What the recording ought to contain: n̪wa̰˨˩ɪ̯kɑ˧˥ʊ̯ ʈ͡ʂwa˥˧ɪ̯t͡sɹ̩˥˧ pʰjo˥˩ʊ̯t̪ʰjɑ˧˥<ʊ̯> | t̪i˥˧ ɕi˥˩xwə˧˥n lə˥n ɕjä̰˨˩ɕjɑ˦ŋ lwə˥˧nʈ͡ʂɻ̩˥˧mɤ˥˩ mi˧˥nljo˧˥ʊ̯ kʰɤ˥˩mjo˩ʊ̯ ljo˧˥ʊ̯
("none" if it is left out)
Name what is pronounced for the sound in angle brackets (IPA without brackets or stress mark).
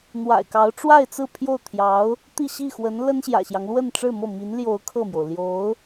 ʊ̯